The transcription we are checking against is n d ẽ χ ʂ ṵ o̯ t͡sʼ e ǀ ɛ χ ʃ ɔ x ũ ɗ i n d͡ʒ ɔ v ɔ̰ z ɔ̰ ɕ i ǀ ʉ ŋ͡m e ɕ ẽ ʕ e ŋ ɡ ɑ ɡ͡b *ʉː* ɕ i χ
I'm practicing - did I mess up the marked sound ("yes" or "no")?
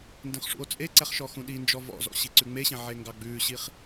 no